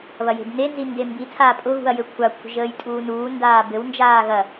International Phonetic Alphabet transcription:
β ɐ j e̤ b n e n z i n d e m b i tʰ aː pʼ ʊ ɣ ṳ ɐ̯ j ɘ kʷʰ a kʷʰ ə̤ ʒ əː j tʼ uː n uː n d aː b ɘ w n d͡ʒ aː ɣ ɐ

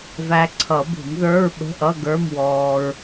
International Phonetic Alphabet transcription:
v æ˧ ǀʰ ʌ˨˩˦ b ṳ˨˩˦ m ð ə˞˧˥˧ ɹ ɓ ə̤˧˥˧ ʔ ʌ˧˥˧ ɡ ə˞˧˥˧ m w ɔː˧ ɹ

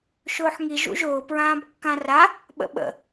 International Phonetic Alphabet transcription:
ʃ ʊː ħ ŋ i ʒ ṵ ʒ ʊː p ɹ ãː b kː ã r a | ɓ ə̰ ɓ ə̰

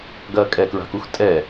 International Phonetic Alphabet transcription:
ɡ ɐː kʼ ɛ k ɹ a̤ k u x tʼ ɛ

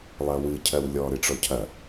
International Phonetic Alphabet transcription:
lˠ ɐ w ɨ cʰ ɜ w lʲ ɔ ɾ ɨ ʈ͡ʂ ɔ cʰ ɐ

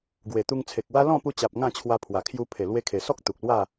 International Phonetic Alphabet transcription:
ɡ w e˨˩ t̪ u˧ ŋ t͡sʰ e˨ k̚ w a˦ l ɔ̃˥˧ p u˧ t͡ɕ a˨ p̚ ŋ ã˥˧ t͡ɕʰ w a˧ pʰ w a˨˩ kʰ j u˧ pʰ e˨˩ l w e˧ kʰ e˨˩ s ɔ˦ k̚ t̪ u˨ k̚ l w a˥˧

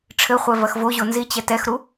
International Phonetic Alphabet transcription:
ʈ͡ʂʰ ɘ χʷ ɛ v ɐ x v o ʑ o n z i t͡ɕ ɛ t ɛ x ɾ u

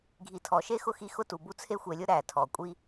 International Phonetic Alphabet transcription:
ɡʱ i˨ tʰ ɔ˩ ʃ e˥ x ʊ˥ x i˦ x ʊ˥ t u˩ b u˦ t͡sʰ e˦ xʷ e˨ lʲ ʊ˥ ɾ æ˩ tʰ ɔ˩ kʷʼ i˦

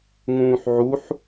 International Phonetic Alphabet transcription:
ŋ ũː ħ ʕ u ħ

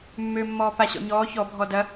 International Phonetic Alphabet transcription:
mː ø mː ɔː p a ɕ ɔ̰ ɲ ɔː ç ɔ bʱ ɔ d ɐ

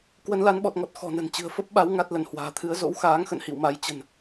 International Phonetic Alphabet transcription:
k w ə˨˦ n l a˨˦ n ɓ ɔ˨˩ t̚ ŋ ɔ˨˩ t̚ x ɔ̤˨˩ n ə̤˨˩ n t͡ɕ ɨ̤˨˩ ə̯ f ə˦˥ p̚ ɓ a˨˦ w ŋ a˦˥ t̚ l ə˧˩ n h w a̤ː˨˩ t̪ʰ ɨ˨˦ ə̯ z o̰˧˥ w x aː˨˦ ŋ x ə̰˧˨ n h ḭ˧˨ w m a˨˦ j t͡ɕ ə̤˨˩ n

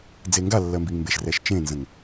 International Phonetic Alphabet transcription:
d͡z e ŋ ɡ a lː ɜ m b i ŋ m b e ʃ r ɛ ʃ t͡ʃ ẽ n z ə̃ ŋ

